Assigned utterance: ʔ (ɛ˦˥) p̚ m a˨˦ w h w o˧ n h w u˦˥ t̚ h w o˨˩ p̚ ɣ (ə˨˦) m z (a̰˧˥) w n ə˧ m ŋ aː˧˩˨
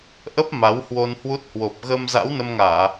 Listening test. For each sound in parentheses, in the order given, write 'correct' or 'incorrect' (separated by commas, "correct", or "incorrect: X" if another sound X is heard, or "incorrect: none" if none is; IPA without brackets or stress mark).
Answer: incorrect: ə˦˥, incorrect: ə˧, correct